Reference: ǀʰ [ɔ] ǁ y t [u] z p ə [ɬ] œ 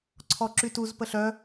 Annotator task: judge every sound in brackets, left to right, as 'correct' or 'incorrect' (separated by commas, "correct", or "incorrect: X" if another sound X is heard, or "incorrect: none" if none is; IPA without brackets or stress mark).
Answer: correct, correct, correct